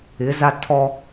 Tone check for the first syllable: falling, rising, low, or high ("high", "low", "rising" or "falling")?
rising